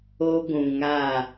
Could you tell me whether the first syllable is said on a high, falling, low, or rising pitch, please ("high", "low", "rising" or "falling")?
high